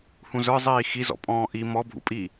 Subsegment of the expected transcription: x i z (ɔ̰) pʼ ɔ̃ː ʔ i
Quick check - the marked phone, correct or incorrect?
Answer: correct